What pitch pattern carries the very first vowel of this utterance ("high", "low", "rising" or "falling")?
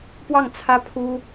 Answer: falling